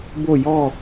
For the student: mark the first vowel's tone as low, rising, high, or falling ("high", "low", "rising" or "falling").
falling